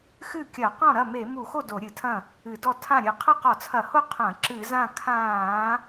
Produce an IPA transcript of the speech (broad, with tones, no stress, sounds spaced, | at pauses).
x ɨ˥˩ kʲ ɐ˧˩˧ q ɔ̃˥˩ ɾ ɐ˥˩ m e˧˩˧ m u˧˩˧ x o˥˩ d o˧˩˧ ɾʲ ɨ˧˩˧ tʰ ɐ̃˥˩ | ɨ˧˩˧ d ɔ˥˩ tʰ ã˥˩ ɾʲ ɨ˧˩˧ qʰ ɐ˥˩ q ɔ˧˩˧ t͡sʰ ɐ˧˩˧ h o˥˩ qʰ ɐ̃˧˩˧ ǁ ɨ˧˩˧ z ã˥˩ kʰ ãː˧˩˧